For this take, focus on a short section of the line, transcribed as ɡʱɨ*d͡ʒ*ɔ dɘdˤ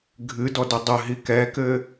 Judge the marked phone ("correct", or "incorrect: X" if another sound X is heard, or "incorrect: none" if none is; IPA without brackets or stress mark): incorrect: d